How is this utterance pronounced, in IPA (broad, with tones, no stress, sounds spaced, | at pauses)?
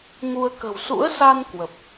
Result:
ŋ u˧ ə̯ k ə̤˨˩ w s ṵ˧˥ ə̯ s a˧ n k w ə˨˩ p̚